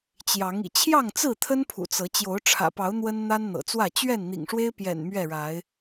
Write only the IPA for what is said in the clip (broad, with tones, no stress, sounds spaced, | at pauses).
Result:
t͡ɕ j ɑ˨˦ ŋ ḭ˨˩ t͡ɕʰ j ɑ˥˨ ŋ t͡s ɹ̩˥˨ t̪ʰ ə˦ n pʰ ṵ˨˩ t͡s ɤ˨˦ t͡ɕ j o˨˦ ʊ̯ ʈ͡ʂʰ ä̰˨˩ p ɑ˨˦ ʊ̯ n̪ w ə˦ n n̪ a˦ n n̪ ɤ̰˨˩ t͡s w ä˥˨ t͡ɕ ɥ ɛ˥˨ n n̪ ḭ˨˩ ŋ ʂ w e˦ ɪ̯ p j ɛ̰˨˩ n m ɥ ɛ˥˨ ɻ a˨˦ ɪ̯